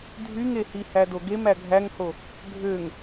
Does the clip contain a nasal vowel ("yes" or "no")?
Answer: no